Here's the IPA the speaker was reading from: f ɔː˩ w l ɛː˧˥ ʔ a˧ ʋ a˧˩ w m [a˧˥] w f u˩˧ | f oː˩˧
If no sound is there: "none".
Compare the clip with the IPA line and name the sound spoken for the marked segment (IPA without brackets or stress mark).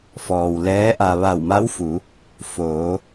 a˧˥